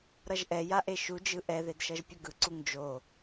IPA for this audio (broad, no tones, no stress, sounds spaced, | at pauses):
ɾ ʌ ʒ ʔ ɛ j a ʔ e ʃ u d͡ʒ ɯ ʔ ɛ ð e d ʃ ʌ ʒ pʲ ʌ ɡ ɯ ǀ u ŋ d͡ʒ o